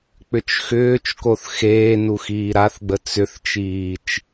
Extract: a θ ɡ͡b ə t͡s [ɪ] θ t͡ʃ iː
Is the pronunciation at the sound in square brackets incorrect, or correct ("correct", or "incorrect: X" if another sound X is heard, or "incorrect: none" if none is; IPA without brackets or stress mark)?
incorrect: ʏ